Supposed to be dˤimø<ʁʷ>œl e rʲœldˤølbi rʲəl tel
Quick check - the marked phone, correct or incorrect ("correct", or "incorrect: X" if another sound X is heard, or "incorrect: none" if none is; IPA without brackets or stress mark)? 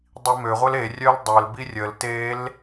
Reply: correct